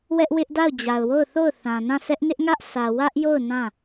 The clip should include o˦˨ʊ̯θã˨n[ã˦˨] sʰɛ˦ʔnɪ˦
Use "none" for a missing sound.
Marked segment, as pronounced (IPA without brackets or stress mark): ã˦˨